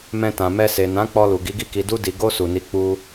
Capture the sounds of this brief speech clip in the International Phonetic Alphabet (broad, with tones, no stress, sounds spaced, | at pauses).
m ɛ̃˧ t ã˨ m ɛ˧ s e˨ n ã˨˦ k͡p ɔ˧ l u˨ ɡ i˨˦ ɡ i˦˨ k i˧ d u˧ d i˨ ɡ o˧ s u˨ n i˨˦ k͡p u˧